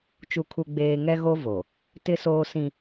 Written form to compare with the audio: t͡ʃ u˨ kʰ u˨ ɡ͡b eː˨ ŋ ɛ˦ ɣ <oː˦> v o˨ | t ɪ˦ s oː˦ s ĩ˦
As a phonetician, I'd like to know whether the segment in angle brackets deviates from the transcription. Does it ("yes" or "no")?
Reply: yes